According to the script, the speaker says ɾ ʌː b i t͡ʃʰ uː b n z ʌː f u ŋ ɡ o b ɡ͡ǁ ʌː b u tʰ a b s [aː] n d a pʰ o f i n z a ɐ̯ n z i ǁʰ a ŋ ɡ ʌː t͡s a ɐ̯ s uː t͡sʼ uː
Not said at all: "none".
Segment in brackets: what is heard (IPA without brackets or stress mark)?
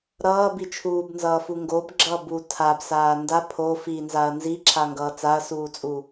aː